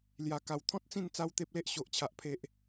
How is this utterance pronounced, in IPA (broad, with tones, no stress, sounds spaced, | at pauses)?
l j a˨˩ k a˨˩ w t̪ʰ ɔ̃˦ t̚ t͡s ĩ˥˧ n t͡s a˦ w t̪ e˦ p̚ l e˦ ʔ ɕ o˨ ʔ t͡ɕʰ a˨ ʔ pʰ e˨ ʔ